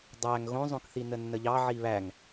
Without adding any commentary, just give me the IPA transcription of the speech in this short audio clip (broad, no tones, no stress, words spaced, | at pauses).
dˤæŋ ɣõzˤõkθi nənːəʎɑ ʕiβæŋ